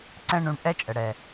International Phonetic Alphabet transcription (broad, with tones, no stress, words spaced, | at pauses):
ǀɛ̃˦ɳũ˧ɳ ʔɛ˦t͡ʃʼə˨ɽɛ˨